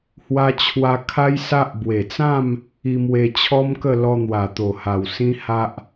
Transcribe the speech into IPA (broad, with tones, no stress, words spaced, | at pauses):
hwa˧t͡ɕʰwa˧ kʰa˦jsa˦ʔ bwe˨˩t͡sã˥˧m | i˧mwe˧ t͡ɕʰɔ˦mkə˥˧ lɔ˧n̪wa˨˩t̪o˨˩ha˨˩w sĩ˦ha˦ʔ